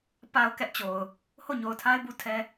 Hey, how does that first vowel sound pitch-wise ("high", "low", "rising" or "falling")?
low